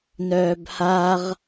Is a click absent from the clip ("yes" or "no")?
yes